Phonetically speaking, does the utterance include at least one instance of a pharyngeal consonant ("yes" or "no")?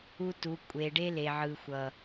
yes